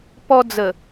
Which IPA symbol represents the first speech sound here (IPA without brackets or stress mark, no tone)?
p